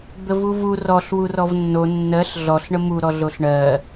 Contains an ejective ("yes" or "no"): no